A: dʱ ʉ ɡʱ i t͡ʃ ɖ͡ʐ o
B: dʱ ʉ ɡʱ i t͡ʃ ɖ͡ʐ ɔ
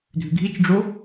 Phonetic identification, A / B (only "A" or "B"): A